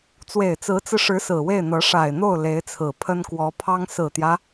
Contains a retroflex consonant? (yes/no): yes